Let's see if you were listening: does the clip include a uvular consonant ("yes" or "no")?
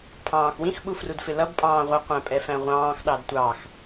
yes